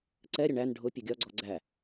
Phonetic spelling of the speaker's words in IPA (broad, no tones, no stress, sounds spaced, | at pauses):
ǀ ɛ ɾʲ ʊ ɳ æ n ɖʱ ʊ pʲ ʊ ɡʲ ɒ ɡ͡ǀ ɔ ɡ͡ǀ æ